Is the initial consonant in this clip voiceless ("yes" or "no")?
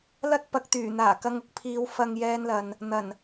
no